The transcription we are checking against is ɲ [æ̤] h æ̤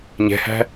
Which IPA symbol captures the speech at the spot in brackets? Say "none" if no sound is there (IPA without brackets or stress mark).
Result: ɛ̤